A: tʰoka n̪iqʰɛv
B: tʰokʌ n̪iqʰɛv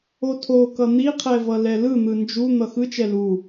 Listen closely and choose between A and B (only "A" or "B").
B